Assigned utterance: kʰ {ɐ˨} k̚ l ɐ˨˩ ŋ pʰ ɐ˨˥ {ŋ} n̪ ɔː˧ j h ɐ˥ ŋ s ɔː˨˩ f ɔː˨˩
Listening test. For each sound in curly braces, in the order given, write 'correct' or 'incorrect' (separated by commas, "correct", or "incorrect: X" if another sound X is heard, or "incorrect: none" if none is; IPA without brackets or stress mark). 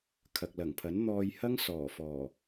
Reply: correct, incorrect: n